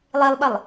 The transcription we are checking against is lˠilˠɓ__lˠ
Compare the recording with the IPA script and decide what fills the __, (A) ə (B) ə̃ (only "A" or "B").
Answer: A